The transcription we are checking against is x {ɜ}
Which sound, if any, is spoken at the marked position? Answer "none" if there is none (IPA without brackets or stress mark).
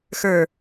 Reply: ə˞